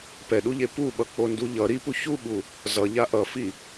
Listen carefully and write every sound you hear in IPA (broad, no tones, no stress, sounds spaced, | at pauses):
p ɛ ɗ u ʎ e p u ɓ ʌ k͡p o n d u ʎ ʌ ɾ i p u ç u ɓ u | z ʌ ʎ a ʔ ʌ f i